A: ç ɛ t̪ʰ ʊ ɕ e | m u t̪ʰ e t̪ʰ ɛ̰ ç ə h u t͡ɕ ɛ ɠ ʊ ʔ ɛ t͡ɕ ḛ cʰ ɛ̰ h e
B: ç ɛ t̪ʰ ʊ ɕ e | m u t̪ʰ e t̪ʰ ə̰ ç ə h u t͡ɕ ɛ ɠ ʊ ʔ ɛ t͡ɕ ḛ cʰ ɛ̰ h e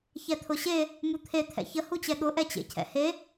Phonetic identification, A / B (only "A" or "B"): A